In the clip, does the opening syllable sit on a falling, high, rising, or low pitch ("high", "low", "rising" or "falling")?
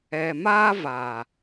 low